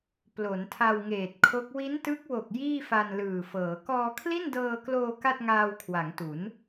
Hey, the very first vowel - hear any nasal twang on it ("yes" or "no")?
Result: no